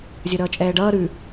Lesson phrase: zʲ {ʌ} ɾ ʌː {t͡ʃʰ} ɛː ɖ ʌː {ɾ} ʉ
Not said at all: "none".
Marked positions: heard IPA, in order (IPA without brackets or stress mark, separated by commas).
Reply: ʌ, t͡ʃʼ, ɾ